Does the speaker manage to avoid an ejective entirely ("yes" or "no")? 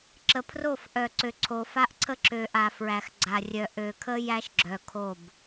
yes